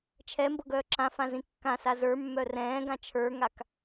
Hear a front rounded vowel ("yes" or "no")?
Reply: yes